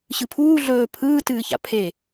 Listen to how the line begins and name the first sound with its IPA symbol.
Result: ɕ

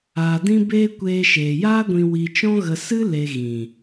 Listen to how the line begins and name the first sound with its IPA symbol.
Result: aː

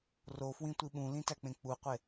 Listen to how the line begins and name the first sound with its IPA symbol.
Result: r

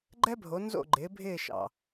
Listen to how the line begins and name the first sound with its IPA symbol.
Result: ɡ͡ǃ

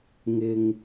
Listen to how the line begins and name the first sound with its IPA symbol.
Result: ŋ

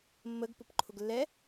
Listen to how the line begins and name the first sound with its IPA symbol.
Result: mː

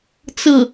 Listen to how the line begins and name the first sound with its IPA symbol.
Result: t͡s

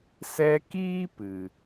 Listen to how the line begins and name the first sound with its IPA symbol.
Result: s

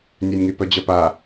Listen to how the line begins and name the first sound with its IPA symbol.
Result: nʲ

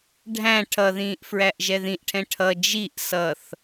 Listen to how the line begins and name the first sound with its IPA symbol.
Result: ɖʱ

